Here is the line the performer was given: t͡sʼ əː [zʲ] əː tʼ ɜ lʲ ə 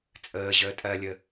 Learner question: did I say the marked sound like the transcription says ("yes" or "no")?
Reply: no